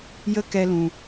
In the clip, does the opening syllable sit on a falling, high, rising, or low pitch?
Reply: high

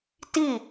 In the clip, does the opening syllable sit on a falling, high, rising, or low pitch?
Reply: falling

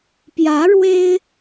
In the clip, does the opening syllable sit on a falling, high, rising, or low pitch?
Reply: rising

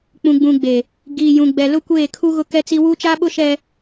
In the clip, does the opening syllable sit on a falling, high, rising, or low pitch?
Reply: low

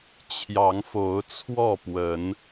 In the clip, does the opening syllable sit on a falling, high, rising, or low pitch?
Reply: rising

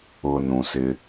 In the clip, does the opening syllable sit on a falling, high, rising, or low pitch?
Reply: low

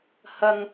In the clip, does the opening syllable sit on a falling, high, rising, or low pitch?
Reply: high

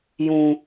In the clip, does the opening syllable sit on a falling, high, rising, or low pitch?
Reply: low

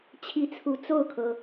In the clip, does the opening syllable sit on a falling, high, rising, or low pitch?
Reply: rising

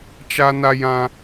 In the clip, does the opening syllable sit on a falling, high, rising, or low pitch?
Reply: high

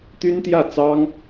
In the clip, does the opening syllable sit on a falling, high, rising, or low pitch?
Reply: high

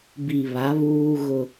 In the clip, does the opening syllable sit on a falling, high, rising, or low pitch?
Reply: low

